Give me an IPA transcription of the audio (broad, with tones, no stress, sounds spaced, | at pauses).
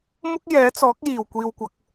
m ʊ˥ k̚ j ɛː˨˥ t͡s ɔː˨˥ k̚ j iː˨˩ w kʷ iː˨ w kʷ ɐ˨˥ k̚